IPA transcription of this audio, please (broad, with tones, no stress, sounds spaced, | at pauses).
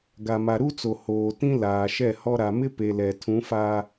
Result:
ɡ a˨ m a˨ ɾ u˦ t͡s o˨ h oː˨ t ĩ˦ l aː˨ ʃ ɛ˦˨ h ɔ˦ ɾ a˨ m ɪ˦ p e˨ l ɛ˨ tʰ ũ˨˦ f a˦